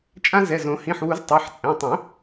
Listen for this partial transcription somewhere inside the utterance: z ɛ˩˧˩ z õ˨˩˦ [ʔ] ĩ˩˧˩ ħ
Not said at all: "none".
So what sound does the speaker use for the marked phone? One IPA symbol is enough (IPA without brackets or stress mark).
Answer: h